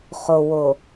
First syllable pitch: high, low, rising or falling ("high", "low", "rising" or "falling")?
low